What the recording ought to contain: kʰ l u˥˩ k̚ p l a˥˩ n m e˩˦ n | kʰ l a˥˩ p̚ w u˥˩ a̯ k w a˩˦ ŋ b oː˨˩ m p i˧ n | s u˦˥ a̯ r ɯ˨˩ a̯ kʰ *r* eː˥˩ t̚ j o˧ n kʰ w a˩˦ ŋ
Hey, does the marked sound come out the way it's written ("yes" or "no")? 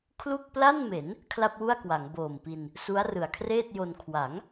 yes